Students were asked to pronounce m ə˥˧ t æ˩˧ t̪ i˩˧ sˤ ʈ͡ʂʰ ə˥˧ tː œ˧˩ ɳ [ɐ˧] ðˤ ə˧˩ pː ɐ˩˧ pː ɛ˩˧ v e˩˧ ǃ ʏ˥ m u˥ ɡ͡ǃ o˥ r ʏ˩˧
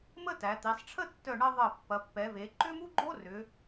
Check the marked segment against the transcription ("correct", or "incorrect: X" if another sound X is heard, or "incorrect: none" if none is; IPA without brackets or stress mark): correct